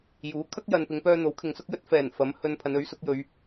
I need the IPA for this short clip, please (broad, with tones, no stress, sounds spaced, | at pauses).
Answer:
j uː˨˥ kʰ ɐ˥ k̚ j ɐ˨ n p ɪ˨˧ ŋ p œː˧ n̪ o˨˥ w kʰ ɪ˨ ŋ s ʊ˥ k̚ j ɵ˥ t̚ f ɛː˨˩ n f ɐ˨˥ m h ɵ˧ n pʰ ɐ˨˧ n ɵ˨˥ ɥ s ʊ˨˥ k̚ j ɵ˨˧ ɥ